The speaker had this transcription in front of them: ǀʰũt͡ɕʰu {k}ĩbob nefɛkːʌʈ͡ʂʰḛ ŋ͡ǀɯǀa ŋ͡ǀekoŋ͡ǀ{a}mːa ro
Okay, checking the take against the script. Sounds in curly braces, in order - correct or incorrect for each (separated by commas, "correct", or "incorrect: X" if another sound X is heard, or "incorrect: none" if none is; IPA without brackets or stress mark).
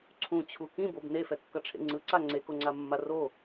correct, correct